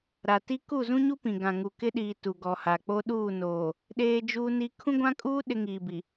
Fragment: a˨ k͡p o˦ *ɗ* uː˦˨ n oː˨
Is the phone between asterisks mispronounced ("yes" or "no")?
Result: no